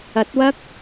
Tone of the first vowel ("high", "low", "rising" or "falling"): rising